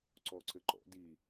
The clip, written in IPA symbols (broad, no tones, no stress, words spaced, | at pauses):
ǀɔǀɘǃɔ̰ di